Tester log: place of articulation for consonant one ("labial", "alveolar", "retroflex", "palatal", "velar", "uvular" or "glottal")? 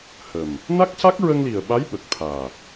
glottal